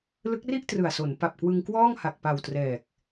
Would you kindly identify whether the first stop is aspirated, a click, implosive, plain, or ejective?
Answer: plain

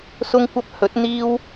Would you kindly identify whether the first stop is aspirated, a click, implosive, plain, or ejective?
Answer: plain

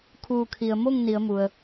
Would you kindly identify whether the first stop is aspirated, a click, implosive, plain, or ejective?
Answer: aspirated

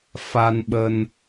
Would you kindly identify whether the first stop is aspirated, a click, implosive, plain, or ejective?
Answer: implosive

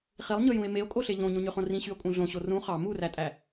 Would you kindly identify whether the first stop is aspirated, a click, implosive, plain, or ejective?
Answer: ejective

